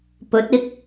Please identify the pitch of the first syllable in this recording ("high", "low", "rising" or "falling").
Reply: rising